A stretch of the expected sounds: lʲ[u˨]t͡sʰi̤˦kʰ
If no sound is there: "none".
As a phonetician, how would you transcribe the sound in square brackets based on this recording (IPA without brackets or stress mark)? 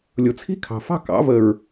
ʊ˨